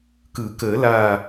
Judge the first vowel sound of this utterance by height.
high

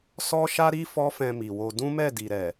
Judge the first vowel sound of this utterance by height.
mid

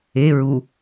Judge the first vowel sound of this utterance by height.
mid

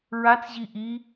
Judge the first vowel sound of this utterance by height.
low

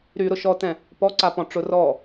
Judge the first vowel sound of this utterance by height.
high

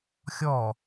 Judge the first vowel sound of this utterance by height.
mid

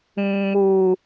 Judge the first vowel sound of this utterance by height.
high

